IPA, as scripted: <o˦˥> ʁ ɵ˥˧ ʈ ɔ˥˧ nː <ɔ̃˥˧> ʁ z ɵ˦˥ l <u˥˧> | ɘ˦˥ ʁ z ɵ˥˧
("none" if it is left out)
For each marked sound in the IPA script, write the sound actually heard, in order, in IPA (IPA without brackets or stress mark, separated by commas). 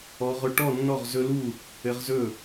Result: ɔ˦˥, ɔ˥˧, u˥˧